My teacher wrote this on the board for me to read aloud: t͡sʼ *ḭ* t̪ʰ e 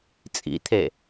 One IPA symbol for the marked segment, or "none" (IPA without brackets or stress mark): ḭ